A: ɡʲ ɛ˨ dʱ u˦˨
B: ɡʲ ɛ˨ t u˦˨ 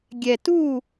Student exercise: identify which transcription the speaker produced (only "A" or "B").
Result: B